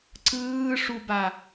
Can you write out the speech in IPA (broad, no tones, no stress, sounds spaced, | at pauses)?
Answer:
ǀ ɯː ʂ u b a